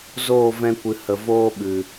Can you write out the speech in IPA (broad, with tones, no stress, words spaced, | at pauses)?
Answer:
zoː˦˨vɛ̃˧kʷɨ˨ hə˨ voː˦ɓɨ˨